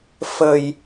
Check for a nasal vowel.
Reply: absent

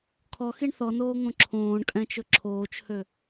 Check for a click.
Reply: present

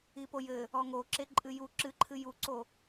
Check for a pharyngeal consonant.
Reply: absent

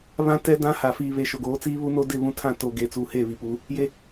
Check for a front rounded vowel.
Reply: absent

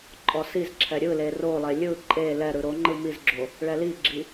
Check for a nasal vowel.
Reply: absent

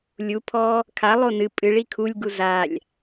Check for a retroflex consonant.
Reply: present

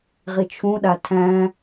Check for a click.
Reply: absent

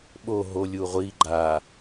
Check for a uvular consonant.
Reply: present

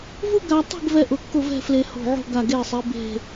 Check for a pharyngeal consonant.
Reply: present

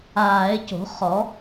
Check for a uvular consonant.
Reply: present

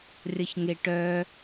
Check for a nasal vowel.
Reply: absent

